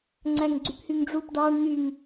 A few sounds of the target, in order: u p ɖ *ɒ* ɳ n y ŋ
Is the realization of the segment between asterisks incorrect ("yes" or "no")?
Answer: yes